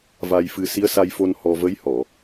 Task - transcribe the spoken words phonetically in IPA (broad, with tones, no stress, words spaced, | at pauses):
va˧jfɨ˧ si˧˥ə̯sa˧jfo˧n hɔ˧ və˧˥jhɔ˨˩˨